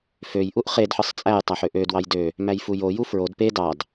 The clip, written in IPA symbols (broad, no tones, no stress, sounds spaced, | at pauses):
f ø j ʔ u ʔ χ e d ħ ɯ sˤ t͡sʼ æ j tˤ æ ħ ø ʔ ø d w ɑ j d ø | m æ j f u j o j u f ɹ o d p e d ɑ d